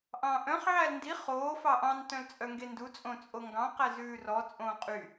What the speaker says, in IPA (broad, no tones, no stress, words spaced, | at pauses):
ʔɑ̃ːʔœ̃χ ʕælndi χoː fɑʔɑ̃n tœ̃lt͡sʼœŋɡendu t͡sʼõt͡sʼoŋɡɑ̃ qæzʉːrɔ t͡sʼõːqʼy